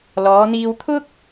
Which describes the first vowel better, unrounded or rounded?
rounded